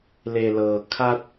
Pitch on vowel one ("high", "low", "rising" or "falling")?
low